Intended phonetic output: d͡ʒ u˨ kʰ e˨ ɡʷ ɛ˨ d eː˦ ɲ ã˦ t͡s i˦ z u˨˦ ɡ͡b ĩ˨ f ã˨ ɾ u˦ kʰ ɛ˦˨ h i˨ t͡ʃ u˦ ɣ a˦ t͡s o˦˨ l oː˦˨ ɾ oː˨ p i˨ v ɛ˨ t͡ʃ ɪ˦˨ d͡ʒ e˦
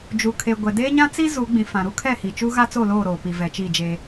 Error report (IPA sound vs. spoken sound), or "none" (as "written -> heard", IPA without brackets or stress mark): ɪ˦˨ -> i˦˨